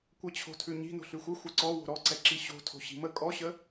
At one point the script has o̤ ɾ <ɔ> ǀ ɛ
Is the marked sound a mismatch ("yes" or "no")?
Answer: no